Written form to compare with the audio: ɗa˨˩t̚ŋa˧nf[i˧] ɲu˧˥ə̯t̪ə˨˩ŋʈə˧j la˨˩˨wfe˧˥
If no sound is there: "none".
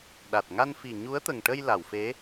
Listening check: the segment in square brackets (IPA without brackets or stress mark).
i˨˩